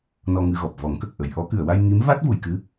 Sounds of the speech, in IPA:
n ɔ˧ ŋ ɨ˧ ɣ ɔ˨˩ p̚ v ɔ˨˩˦ ŋ k ə˨˩ k̚ ʔ ə˨˩˨ j ʔ ɔ˨˩˦ k ɨ˨˩˨ ə̯ w a˧ j ŋ i˧˥ m v a˦˥ t̚ v u˨˩˨ j k ɨ˧˥

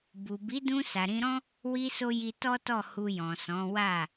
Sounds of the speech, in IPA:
b u˨ b i˨˦ d ũ˧ s a˨ ɾ ĩ˧ ɾ ɔ̃˦ | w i˧ s o˧ j i˧ t ɔ˦ t ɔ˦˨ h u˧ j ɔ̃˨ s ɔ̃˨˦ w a˦˨

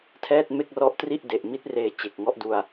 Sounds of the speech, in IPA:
tʰ ɛː˥˩ t̚ m e˥˩ k̚ r ɔ˦˥ ʔ t r i˥˩ ʔ d e˨˩ ʔ m i˦˥ t̚ r eː˧ t͡ɕ e˨˩ k̚ ŋ ɔ˦˥ ʔ d u˧ a̯

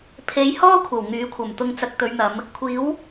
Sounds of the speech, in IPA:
pʰ e˨˧ j h ɔː˥ kʷʰ ɐ˨˩ w ŋ yː˨˥ kʷʰ ɐ˨˩ m t̪ ʊ˧ ŋ t͡s ɐ˧ k̚ t̪ ɵ˨˧ ɥ n̪ ɐ˨˧ m | kʷʰ iː˨˥ w

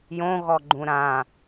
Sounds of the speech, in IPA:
j õ ɣ ɔ ɡ͡ǃ ũ ɾ ã

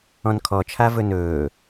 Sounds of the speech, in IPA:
ɔ̃ n kʰ ɔ t͡ʃʰ a v ɵ n ɵː

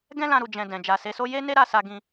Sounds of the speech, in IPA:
ɡ ɛ̃˦ l ã˧ ɾ u˨ d͡ʒ ɛ̃˧ d ɛ̃˨ d͡ʒ a˨ s e˨˦ s o˦ j e˦ n e˦ ɾ a˦˨ s a˧ ɡ ĩ˧

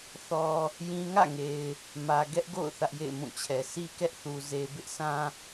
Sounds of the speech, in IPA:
θ ɔ˦ | j ĩ˦ ŋ ä̰˦˨ ŋ e˨ ɪ̯ | m ä˨ ɡ ɛ˦ ʔ ɡ o̰˦˨ ʊ̯ θ ä˦ ʔ j ḛ˦˨ ɪ̯ m ũ˦˨ t͡ɕʰ ɛ˨ s i˦ k ɛ˦ ʔ θ u˨ z e˨ b ɪ˦ ʔ s ã˦

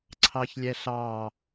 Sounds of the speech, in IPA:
ǀʰ ɑ ç lʲ ɛ ɬ ɑ

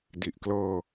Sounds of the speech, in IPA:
d i˨˩ ʔ k l ɤː˧

